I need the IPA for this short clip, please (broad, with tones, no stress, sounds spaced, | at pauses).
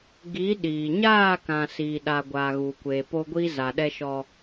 ɡ i˨˦ ɗ iː˨ ɲ aː˦˨ k ã˨ s iː˨ ɗ a˨ ɡʷ a˨ ɣ uː˨ kʷ eː˨ p o˦ ɡʷ i˦ z a˨ ɗ ɛ˦ ʃ ɔ˦